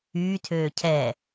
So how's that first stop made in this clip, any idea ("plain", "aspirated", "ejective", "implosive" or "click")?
aspirated